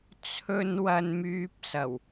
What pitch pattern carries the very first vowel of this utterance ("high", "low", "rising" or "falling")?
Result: high